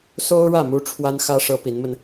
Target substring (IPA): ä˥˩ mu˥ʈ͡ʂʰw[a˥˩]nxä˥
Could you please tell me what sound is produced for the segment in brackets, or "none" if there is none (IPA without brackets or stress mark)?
a˥